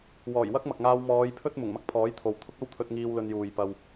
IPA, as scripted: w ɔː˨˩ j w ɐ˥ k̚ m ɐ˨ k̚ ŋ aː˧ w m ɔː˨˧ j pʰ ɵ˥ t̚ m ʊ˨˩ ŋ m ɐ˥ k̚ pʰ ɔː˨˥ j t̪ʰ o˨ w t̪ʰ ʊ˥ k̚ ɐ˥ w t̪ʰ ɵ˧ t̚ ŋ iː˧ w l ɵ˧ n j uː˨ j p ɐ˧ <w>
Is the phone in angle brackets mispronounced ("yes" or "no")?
no